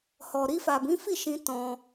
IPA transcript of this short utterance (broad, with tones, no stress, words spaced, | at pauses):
hɔ˨ɾi˧fa˨ bĩ˨˦fi˦˨ʃĩ˧ tɔ̃˧